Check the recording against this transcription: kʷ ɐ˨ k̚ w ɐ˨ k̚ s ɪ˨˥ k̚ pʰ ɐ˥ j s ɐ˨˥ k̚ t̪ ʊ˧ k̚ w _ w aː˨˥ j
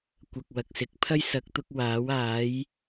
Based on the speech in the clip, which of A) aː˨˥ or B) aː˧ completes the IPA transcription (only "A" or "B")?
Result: A